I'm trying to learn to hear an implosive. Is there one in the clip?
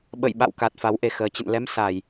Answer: yes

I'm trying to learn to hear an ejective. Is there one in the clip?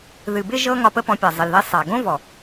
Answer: no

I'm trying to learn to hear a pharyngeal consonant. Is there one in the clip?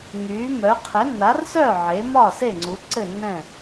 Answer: yes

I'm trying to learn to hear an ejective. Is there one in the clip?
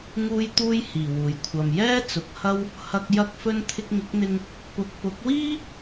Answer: no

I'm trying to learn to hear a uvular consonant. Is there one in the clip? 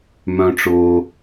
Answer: no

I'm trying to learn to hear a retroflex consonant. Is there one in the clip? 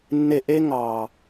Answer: no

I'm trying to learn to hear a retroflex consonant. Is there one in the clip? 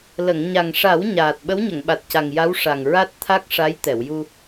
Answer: yes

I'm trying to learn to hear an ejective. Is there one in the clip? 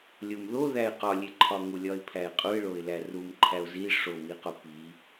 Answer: yes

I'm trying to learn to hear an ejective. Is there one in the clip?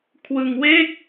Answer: no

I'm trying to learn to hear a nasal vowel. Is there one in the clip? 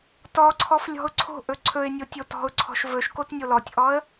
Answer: no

